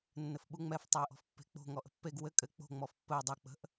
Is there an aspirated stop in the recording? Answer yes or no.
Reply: no